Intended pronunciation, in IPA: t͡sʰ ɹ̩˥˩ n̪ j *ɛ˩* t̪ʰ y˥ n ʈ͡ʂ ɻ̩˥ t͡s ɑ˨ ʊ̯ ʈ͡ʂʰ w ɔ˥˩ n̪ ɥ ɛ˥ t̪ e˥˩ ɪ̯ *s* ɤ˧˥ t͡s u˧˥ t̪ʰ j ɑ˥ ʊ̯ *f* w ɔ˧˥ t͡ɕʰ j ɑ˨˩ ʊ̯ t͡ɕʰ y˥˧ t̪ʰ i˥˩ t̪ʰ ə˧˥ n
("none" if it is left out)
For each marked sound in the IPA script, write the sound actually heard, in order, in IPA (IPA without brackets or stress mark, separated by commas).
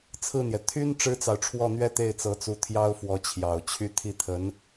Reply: ɛ˩, t͡s, f